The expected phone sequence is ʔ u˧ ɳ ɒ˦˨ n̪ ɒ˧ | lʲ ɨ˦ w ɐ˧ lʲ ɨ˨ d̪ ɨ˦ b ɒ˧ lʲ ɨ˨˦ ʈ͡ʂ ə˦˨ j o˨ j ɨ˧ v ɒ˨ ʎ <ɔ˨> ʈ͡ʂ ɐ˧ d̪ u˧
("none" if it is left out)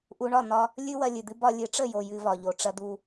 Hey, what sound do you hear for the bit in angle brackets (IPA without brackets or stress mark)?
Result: o˨